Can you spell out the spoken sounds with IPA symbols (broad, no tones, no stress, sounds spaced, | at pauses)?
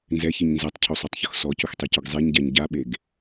n z ɛ ç i ɲ n z ɛ tˤ cʰ u sˤ o tˤ ç ʊ x s ɔ c ʊ x tˤ i c ʊ ɡ zˤ e ɲ ɟ a ɲ ɟ a ɓ e ɡ